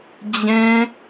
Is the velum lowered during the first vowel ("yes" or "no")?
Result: yes